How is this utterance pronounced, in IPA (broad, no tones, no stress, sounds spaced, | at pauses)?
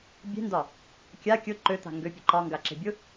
bʲ e̤ n d ɒ | kʲ a kʲ ʊ ǃ ø t̪ a̤ ŋ ɡ ø pʲ ø ǃ ɒ ŋ ɡ a ǁ e̤ bʲ ʊ